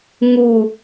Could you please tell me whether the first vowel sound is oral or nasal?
oral